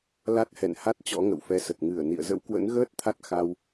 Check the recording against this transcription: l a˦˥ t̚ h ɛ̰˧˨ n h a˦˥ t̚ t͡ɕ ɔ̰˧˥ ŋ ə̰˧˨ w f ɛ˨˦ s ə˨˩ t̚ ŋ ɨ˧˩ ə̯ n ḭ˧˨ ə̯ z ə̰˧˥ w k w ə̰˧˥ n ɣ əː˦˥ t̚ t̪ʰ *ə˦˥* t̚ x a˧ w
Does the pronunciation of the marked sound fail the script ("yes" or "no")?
yes